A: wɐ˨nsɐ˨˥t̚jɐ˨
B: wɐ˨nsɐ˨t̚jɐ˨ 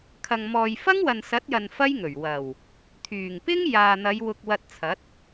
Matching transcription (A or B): A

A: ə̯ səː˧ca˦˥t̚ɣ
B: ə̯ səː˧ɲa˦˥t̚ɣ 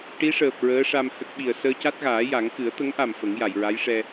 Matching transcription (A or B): A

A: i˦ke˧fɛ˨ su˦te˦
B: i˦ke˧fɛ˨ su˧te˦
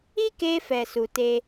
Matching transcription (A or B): B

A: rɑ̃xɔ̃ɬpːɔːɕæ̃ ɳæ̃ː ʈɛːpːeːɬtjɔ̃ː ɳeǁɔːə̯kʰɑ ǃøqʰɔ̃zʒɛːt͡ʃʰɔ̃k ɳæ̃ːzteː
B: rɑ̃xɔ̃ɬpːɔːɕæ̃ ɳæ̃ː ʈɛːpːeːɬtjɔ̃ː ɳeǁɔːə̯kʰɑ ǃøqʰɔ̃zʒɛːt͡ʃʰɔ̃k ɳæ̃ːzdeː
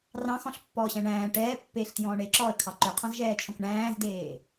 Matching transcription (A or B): B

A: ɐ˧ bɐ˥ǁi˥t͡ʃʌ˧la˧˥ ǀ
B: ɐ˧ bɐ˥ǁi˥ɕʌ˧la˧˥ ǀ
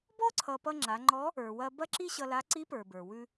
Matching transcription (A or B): B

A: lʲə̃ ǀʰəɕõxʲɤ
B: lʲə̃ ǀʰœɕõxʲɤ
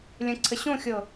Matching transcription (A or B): A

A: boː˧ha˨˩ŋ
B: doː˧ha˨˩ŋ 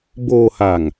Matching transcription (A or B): A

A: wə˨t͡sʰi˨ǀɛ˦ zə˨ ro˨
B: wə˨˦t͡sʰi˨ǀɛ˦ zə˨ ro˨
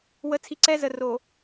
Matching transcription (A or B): B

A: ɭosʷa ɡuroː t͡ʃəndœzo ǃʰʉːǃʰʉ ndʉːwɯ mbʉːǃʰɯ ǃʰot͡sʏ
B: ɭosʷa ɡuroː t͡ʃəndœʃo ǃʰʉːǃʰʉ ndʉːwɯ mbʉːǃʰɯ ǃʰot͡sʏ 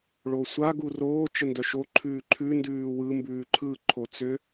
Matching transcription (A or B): B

